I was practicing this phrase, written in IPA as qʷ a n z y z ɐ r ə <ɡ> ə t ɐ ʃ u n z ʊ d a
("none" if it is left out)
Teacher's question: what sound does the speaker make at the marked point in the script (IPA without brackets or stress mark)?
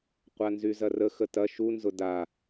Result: x